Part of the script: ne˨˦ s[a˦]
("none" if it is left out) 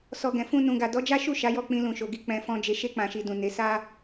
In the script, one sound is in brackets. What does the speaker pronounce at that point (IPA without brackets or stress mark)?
a˦